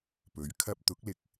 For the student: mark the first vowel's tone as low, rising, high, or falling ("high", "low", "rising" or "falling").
rising